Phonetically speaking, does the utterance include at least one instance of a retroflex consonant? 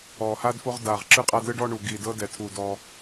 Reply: yes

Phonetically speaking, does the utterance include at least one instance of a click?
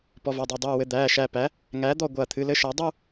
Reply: no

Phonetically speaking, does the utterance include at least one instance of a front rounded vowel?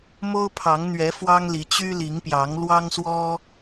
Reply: yes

